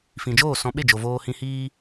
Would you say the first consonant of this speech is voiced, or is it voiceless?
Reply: voiceless